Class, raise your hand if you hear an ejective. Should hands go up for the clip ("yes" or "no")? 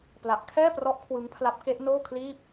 no